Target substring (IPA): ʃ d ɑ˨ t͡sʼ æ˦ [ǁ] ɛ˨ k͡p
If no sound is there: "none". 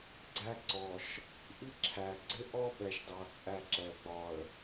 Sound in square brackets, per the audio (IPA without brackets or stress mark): ǁ